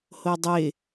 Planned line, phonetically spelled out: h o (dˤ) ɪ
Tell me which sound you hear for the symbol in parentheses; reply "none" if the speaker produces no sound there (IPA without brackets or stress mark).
dˤ